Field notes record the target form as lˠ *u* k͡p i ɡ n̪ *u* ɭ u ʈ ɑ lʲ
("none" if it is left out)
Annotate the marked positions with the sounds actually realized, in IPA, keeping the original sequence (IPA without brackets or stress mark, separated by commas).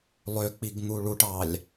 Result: ø, u